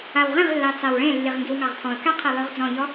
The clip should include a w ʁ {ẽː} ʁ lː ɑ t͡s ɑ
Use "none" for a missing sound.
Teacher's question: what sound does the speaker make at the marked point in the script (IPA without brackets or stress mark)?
ẽ